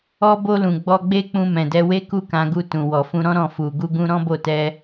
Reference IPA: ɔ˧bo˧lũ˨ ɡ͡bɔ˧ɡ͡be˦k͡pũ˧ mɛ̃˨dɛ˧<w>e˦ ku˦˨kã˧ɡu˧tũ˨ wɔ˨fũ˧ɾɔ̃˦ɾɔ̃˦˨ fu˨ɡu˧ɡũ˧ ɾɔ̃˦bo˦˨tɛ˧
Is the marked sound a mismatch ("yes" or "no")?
no